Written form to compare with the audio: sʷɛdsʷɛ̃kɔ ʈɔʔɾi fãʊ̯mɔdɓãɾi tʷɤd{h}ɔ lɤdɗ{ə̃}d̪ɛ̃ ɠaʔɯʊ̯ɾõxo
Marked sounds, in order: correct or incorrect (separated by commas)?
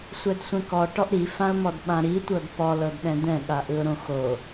incorrect, incorrect